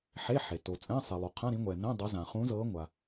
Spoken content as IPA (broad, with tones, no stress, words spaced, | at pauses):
ħe˧˥˧ħe˩ to˩t͡sʼɛ̃˧˥˧sˤi˩ lˠo˩qʰã˧˥˧ɾĩ˨˦ŋʷɛː˩ nɛ̃˧˥˧ dˤɤ˨˦zã˩ χũ˨˦zɤː˨˦ ŋʷa˩